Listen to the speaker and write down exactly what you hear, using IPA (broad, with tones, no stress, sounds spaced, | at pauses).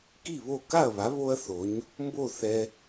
k i˥˩ β o˥˩ k a˥˩ ɐ̯ β a˩˥ β o˥ ɐ̯ θ o˩˥ ɲ | m b o˥˩ θ ɛ˧